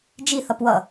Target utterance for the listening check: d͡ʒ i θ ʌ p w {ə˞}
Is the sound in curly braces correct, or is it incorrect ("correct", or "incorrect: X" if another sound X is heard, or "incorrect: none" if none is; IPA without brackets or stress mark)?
incorrect: ʌ